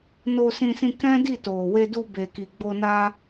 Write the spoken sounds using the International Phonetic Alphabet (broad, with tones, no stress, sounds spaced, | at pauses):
n o˧ s ĩ˧ s ĩ˧ k ɛ̃˦ d i˦˨ t o˨ w e˧ d u˧ b e˨ k i˨ ɡ͡b o˧ n a˦